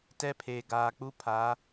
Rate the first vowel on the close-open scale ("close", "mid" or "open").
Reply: mid